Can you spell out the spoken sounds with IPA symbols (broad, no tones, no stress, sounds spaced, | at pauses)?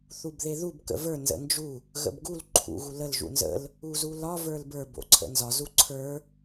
θ u b ð e ð u b k ə̰ v ə˞ n z ə̰ n d͡ʒ u | ɣ ə̰ b ɡ u l ǃʰ ṵ ɣ u l ə l ʒ ṵ n z ə̰ l | u z u l ɒ v ə˞ l b ə˞ b o̰ ǀʰ ə̰ n z ɒ z u ǀʰ ə˞